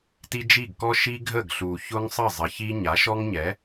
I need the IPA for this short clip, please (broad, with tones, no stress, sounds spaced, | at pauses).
t i˦ d͡ʒ i˦˨ ɡ k ɔ˦ ʃ i˦ ɡʱ ə˦˨ ɡ ɬ u˨ ç ʊ˦ ŋ sˤ ə˦˨ zˤ ə˨ ç i˧ ɲ a˨˦ ʃ ɔ˦ ŋ ɲ ɛ˨˦